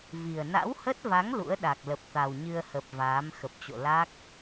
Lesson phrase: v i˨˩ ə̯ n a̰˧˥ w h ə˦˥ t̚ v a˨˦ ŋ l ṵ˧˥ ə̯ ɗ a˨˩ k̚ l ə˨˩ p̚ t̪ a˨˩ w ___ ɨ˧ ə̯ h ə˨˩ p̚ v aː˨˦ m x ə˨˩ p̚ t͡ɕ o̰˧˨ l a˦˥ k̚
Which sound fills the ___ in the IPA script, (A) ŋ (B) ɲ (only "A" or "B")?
B